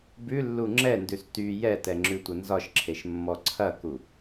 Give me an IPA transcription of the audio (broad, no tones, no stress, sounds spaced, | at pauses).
b ʉ lː u ŋ͡ǁ ɛ n d ʉ s t y j ɛ t ɛ ŋ͡ǁ ʉ tʷ ɐ n z ɒ ʃ ǁʰ e ʃ mː ɔ ǀʰ ɐ k u